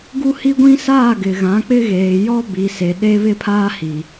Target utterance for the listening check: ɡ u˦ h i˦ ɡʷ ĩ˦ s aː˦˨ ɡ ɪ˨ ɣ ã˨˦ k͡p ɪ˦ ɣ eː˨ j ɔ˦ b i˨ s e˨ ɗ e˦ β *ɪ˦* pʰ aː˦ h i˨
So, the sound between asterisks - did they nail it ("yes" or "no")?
yes